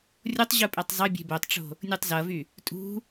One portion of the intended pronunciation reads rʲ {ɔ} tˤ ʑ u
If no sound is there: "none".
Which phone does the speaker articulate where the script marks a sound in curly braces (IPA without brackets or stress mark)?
o